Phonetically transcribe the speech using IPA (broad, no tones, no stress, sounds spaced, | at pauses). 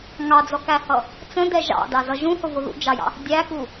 ŋ ɑ d͡z ɔ k æ h ʌ | t͡s ə̃ d ɛ ʒ ɑ̰ d ɑ z ʌ ʒ ũ h ʊ v ʊ ð ṵ d͡ʒ ɑ j ɑ̰ | dʲ æ k u